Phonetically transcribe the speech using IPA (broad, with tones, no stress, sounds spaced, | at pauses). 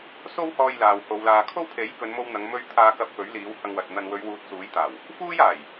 s o˥ w h ɔː˧ j l aː˨ w h o˨˧ w l aː˨ kʰ o˥ w pʰ e˨˥ j k ɵ˨˧ n m o˧ w n̪ ɐ˨˧ ŋ m ɵ˧ ɥ t̪ʰ aː˧ k ɐ˧ p̚ f ɵ˨˥ ɥ l iː˨˥ w h ɐ˧ ŋ w ɐ˨ t̚ n̪ ɐ˨ n w ɵ˨˧ ɥ w uː˧ t̚ s uː˨˥ j t̪ aː˨˩ w | f uː˥ j aː˨˩ j